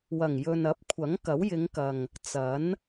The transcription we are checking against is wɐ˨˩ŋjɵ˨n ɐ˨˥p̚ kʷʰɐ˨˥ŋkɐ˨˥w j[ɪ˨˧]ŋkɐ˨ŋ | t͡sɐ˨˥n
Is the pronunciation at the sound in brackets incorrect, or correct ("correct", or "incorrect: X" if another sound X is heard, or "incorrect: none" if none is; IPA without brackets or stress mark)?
correct